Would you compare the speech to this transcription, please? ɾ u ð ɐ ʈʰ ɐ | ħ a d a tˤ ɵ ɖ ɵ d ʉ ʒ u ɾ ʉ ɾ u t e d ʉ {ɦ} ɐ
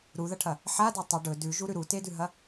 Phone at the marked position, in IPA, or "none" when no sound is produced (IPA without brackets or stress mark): ɦ